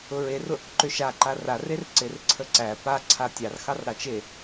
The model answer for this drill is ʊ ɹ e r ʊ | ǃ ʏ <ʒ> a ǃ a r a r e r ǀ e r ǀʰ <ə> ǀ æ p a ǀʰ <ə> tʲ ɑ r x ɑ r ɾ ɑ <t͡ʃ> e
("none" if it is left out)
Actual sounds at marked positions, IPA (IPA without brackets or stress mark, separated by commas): ʃ, ə, a, t͡ʃ